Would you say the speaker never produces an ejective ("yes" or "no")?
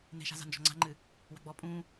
no